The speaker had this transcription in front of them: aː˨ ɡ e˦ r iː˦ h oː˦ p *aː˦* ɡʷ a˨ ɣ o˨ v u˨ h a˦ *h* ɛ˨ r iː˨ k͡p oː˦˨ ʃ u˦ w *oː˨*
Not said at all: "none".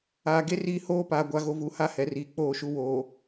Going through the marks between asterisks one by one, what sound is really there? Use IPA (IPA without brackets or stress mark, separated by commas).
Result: aː˨, h, oː˨